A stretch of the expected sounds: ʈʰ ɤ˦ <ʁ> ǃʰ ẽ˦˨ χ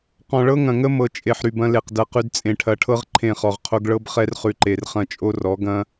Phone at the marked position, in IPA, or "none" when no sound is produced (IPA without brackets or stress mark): ʁ